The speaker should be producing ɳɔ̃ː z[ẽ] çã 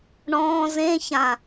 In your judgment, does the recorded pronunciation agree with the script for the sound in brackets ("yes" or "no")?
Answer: yes